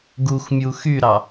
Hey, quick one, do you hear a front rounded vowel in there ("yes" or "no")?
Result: yes